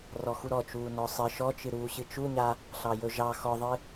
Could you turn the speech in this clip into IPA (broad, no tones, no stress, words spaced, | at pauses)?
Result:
rɔxuɾɔt͡ʃuː nɔsˤɨ ʃɔt͡ʃɨɾuː ɕɨt͡ʃuɲa | ɬɑjɵʒɑ xɔðˤɨ